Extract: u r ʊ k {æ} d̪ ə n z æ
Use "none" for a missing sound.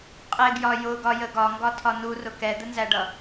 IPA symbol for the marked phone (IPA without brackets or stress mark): ɛ